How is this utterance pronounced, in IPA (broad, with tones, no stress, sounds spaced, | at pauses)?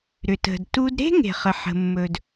ɾ ʏ˩ t ə̤˩ d t u˧ d ɾ e̤˥ ŋ e̤˩ χ ə˩ ħ ə̤˩ mː ɵ˩ d